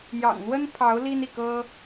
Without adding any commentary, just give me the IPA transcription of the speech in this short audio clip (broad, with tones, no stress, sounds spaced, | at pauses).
j ɑ̰˨˩ ŋ n̪ w ə˥ n pʰ ɑ˧˥ ʊ̯ l i˥ n i˥˩ k ɤ˥